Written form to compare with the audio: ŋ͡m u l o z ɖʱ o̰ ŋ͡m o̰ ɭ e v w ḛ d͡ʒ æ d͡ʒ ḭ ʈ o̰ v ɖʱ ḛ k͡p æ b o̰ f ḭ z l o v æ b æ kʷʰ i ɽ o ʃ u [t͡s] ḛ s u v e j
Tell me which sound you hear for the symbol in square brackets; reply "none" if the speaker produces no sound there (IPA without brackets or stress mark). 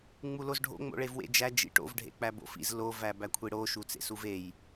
t͡s